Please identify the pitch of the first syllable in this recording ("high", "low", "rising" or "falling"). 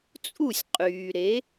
falling